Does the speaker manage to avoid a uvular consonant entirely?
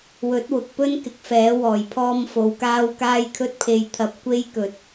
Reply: yes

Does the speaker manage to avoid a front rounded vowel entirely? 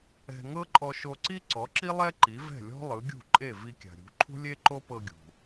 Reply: yes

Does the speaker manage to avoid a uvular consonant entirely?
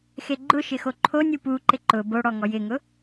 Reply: yes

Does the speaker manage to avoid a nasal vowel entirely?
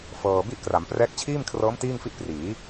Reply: yes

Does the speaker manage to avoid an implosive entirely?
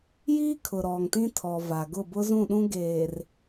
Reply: no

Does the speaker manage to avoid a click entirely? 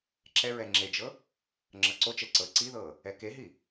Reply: no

